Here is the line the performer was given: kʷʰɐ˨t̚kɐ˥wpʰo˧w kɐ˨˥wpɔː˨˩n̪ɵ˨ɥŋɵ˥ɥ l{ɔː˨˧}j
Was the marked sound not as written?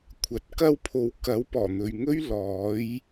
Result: yes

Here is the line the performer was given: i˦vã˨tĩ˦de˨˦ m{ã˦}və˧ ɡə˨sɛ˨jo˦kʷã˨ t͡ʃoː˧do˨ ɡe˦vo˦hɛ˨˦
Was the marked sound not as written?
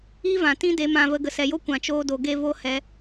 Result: yes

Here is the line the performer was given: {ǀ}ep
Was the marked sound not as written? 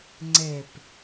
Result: yes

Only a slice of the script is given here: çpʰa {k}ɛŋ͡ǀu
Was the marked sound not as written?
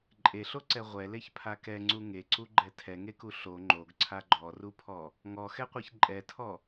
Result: no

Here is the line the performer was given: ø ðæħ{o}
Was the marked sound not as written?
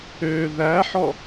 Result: yes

